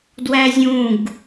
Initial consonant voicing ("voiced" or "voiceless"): voiced